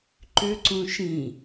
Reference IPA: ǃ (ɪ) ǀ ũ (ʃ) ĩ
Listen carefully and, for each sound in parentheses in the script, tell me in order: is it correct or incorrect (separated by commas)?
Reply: incorrect, correct